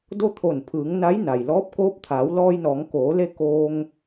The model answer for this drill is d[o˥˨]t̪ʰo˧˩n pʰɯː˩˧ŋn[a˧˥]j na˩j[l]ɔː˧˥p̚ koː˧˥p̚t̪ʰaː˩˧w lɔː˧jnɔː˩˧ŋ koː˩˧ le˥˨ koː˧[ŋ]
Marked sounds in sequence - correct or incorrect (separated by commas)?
correct, correct, correct, correct